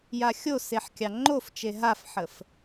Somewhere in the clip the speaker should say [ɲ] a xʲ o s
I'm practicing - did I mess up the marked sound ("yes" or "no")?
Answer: yes